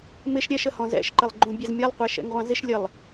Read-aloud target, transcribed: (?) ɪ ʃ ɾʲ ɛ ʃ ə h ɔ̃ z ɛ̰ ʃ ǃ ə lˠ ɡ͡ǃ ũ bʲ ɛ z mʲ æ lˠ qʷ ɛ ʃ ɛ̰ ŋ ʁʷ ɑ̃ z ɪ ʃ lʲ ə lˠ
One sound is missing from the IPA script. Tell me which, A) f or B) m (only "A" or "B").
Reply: B